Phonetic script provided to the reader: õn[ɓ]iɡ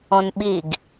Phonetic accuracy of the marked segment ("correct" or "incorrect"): correct